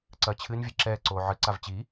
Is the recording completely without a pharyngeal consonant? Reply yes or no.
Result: no